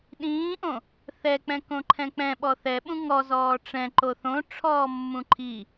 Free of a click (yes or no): no